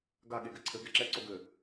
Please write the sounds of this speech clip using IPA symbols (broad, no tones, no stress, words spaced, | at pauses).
ɡa ɠeɡɘǀʰɘ ɡɛǁɛ ǀoɡɘ